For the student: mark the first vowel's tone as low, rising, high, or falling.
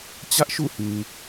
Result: high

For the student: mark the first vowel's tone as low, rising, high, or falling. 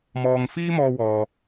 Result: low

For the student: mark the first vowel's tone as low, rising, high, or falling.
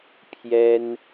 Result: high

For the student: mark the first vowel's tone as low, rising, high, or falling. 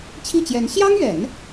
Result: falling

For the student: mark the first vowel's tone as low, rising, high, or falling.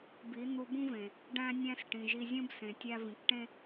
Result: rising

